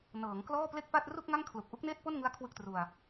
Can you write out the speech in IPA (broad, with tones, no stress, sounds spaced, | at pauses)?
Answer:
n ɤː˩˦ ŋ k l ɔː˥˩ p l e˥˩ k̚ p a˥˩ t̚ r u˥˩ k̚ ŋ a˥˩ ŋ kʰ l u˨˩ k̚ ʔ u˦˥ k̚ n eː˥˩ t̚ p o˥˩ n ŋ ɯ˦˥ a̯ kʰ w ɯ˥˩ k̚ t r u˧ a̯